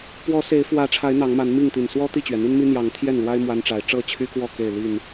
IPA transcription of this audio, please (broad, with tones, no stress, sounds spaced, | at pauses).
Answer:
p w ɔ˨˦ s e˨˦ ɪ̯ f w ä˨˦ ʈ͡ʂʰ a˨˦ ɪ̯ n̪ ɑ˨˦ ŋ m a˨˦ n m i˥˨ ŋ t̪ i˨˩ n s w ɔ˦ t̪ i˥˨ t͡ɕ ɥ ɛ˩ n̪ i˦ n m i˦ n̪ j ɑ˨˦ ŋ t̪ʰ j ɛ˥˨ n l w a˦ ɪ̯ m w a˦ n ʈ͡ʂ a˨˦ ɪ̯ ʈ͡ʂ ɤ˥˨ t͡ɕʰ y˦ k w ɔ˥˨ k e˥˨ ɪ̯ l i˥˨ n